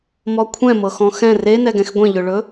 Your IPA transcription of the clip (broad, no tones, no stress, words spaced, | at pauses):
mɔkʷʰɛ̃ mɤxɔ̃xɛ̃ renɛɡɛ̃x ɡʷẽʎɵɭɵ